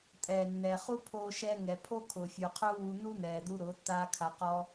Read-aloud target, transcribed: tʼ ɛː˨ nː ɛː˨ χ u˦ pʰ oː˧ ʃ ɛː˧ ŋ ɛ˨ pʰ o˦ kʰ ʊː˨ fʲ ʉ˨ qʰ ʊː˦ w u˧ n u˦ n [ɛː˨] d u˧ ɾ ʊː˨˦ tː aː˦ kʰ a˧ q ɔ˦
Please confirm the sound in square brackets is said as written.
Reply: yes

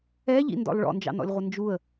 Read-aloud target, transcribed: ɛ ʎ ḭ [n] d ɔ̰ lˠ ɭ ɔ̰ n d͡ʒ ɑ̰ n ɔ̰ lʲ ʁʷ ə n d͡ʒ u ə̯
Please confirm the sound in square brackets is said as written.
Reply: yes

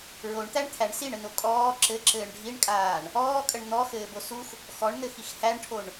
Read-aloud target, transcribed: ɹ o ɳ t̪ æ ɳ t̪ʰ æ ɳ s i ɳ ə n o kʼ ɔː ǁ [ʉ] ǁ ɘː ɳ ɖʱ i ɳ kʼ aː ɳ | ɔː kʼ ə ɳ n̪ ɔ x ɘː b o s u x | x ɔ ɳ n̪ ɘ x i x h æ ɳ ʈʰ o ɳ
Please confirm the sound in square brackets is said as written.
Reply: no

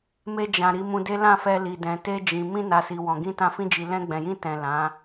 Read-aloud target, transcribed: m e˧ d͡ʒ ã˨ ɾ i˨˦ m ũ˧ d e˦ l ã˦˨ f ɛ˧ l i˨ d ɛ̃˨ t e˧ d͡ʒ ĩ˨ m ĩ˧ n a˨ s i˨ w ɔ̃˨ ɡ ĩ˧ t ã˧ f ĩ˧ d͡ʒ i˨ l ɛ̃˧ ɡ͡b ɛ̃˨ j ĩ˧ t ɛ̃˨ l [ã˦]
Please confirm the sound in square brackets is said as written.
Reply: no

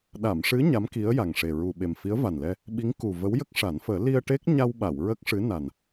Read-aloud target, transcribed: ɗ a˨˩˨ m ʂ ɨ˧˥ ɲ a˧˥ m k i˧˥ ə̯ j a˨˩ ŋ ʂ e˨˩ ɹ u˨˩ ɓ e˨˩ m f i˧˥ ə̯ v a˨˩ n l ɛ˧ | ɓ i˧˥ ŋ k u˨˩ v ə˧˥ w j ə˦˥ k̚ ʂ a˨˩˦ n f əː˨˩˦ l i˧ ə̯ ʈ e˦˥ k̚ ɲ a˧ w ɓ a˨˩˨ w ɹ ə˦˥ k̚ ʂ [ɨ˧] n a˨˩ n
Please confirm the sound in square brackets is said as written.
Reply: no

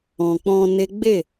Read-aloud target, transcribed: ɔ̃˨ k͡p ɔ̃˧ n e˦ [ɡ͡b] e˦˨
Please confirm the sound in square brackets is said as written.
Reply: yes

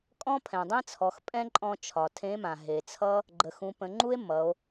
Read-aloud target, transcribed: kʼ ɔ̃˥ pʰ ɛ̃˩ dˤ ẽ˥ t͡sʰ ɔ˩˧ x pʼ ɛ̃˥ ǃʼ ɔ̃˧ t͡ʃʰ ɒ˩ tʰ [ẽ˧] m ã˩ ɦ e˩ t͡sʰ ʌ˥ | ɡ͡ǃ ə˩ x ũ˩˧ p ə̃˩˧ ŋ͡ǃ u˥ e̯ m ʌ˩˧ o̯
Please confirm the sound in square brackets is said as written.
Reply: no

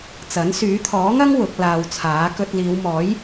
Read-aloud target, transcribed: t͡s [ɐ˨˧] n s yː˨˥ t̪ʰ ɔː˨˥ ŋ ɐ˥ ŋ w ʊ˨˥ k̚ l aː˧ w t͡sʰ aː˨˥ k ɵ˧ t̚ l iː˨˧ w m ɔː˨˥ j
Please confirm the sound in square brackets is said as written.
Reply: no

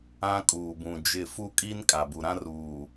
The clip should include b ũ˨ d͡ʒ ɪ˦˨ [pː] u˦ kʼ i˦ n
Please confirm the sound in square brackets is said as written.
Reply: no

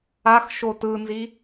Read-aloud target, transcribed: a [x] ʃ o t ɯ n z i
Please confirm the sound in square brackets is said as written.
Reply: yes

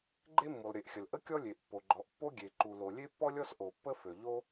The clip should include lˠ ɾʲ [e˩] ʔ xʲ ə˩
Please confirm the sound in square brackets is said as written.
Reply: yes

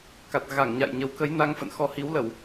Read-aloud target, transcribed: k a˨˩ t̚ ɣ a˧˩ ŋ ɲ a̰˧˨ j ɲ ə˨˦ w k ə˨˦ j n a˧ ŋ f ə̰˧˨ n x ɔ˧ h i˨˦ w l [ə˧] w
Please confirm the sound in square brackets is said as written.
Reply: no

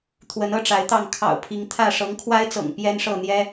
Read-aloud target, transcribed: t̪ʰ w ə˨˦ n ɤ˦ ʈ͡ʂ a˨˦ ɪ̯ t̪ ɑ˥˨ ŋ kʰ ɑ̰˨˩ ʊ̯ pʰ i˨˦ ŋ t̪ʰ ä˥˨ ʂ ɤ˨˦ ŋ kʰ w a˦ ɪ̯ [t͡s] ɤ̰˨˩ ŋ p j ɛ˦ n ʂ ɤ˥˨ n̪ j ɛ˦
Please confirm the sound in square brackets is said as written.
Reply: yes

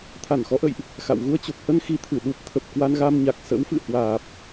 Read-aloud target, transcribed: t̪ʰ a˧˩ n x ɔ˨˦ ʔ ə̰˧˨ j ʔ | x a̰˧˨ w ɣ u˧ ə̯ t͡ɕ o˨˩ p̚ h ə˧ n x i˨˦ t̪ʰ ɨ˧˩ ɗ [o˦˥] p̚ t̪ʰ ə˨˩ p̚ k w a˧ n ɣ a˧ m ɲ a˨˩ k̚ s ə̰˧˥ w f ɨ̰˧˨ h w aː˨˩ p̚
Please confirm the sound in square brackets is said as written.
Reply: no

